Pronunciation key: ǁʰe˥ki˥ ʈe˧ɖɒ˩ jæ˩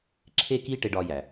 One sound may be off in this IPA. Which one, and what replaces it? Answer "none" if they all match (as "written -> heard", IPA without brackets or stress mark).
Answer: ɒ˩ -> ɒ˧